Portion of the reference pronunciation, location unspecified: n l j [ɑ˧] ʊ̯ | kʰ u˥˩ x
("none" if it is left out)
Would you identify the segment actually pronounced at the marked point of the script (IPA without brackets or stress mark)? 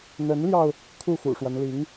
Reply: ɑ˧